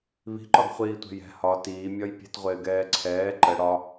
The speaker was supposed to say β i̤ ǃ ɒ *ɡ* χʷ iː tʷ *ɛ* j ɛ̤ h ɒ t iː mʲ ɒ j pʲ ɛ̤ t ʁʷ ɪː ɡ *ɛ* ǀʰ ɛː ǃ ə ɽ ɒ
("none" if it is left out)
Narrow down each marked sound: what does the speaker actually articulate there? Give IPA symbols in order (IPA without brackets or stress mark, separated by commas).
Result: ɡ, ɛ̤, ɛː